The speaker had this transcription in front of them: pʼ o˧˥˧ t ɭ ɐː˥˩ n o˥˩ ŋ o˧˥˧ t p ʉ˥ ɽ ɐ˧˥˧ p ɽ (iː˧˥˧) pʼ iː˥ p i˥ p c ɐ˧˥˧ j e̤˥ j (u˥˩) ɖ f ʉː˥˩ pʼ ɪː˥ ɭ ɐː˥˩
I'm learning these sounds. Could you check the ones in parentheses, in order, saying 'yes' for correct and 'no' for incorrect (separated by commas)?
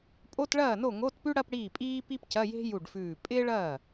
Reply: no, yes